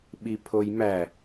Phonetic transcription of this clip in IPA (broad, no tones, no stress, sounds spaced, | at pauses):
ɓ i pʰ o j m æ